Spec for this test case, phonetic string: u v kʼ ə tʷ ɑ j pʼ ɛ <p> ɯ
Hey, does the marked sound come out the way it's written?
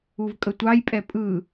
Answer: no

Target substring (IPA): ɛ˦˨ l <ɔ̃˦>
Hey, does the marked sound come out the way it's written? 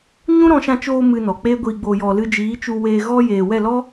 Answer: no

